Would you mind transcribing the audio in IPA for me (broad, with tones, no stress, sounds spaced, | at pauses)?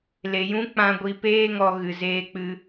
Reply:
l e˨ j ũ˦ k͡p ã˧ ɡʷ i˧ p eː˦ ŋ ɔ˧ ɣ ɨ˨ z eː˧ k͡p ɨ˧